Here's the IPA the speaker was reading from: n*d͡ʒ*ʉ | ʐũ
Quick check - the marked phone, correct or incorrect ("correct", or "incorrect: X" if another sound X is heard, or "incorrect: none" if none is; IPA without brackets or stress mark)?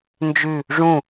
correct